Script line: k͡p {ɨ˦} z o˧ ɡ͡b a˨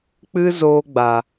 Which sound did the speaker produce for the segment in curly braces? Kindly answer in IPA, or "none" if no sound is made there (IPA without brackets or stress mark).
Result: ɨ˦